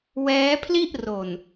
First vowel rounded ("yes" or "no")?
no